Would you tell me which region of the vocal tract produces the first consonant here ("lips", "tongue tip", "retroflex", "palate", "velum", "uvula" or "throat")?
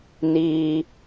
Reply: tongue tip